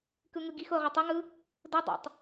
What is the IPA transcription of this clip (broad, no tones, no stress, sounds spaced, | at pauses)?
k ɯ ŋ ɯ ɡ i x ʊː ʁ ʊ tˤ ə ŋ ɯ | d ʊ dˤ ɛ̰ tˤ